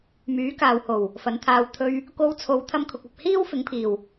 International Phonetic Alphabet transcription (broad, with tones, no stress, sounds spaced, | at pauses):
m yː˨˥ k aː˨ w h o˨˩ w | f ɐ˨˥ n t̪ʰ aː˧ w t̪ʰ ɵ˧ ɥ | k o˧ w t͡sʰ o˨˧ w t̪ʰ ɐ˥ m kʰ ʊ˧ k̚ ɐ˨ p̚ h iː˥ w f ɪ˨˥ ŋ pʰ iː˨˩ w